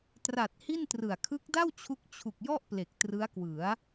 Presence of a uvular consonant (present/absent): absent